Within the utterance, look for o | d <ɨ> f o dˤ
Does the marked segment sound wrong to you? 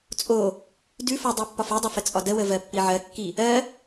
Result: yes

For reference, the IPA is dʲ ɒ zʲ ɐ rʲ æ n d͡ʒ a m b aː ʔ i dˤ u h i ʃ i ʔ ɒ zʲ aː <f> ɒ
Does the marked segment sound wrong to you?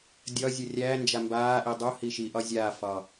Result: no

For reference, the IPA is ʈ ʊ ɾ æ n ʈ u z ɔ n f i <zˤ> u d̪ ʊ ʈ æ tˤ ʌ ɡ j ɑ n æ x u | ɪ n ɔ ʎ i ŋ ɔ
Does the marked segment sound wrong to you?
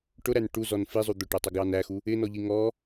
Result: no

